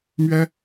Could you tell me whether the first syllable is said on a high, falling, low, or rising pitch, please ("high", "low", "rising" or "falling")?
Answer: high